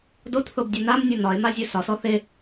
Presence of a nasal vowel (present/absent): absent